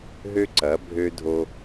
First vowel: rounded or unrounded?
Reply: rounded